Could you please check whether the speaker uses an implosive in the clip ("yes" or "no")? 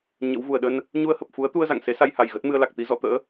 yes